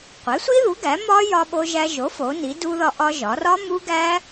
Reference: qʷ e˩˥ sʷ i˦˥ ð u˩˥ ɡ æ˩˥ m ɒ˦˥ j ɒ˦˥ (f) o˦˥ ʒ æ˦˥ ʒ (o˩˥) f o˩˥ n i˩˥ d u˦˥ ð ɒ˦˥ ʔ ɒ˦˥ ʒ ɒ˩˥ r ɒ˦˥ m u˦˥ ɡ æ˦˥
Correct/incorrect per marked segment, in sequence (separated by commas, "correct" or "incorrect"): incorrect, correct